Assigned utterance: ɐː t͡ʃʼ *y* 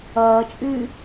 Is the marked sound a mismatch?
yes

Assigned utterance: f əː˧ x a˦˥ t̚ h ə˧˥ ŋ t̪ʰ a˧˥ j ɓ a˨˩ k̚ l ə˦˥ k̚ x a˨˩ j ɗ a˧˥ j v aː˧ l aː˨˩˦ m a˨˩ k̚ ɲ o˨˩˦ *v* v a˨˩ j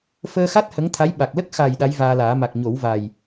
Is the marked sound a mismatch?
yes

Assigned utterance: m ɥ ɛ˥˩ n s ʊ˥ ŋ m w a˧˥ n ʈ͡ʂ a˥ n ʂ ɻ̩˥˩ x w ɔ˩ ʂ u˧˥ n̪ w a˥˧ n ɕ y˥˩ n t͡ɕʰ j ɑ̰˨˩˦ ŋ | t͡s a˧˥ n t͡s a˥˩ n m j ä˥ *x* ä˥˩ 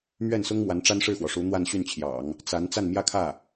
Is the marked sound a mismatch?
yes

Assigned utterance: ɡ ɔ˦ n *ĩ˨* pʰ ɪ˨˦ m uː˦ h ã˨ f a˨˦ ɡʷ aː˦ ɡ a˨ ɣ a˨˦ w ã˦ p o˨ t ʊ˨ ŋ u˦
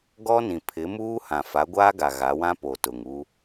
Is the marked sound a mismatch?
no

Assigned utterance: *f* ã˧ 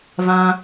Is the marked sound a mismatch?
yes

